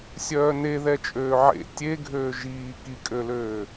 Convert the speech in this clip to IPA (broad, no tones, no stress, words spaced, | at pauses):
sʲœːneðɛ t͡ʃʼøːʕḛ tʲeɡʱøː ʒiː kikʼøløː